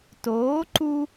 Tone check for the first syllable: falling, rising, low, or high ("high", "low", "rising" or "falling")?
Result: rising